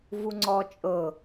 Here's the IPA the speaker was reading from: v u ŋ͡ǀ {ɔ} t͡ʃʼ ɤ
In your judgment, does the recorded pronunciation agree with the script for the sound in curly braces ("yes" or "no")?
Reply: yes